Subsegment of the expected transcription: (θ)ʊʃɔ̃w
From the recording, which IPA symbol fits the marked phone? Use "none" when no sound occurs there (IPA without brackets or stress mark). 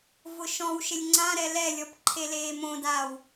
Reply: v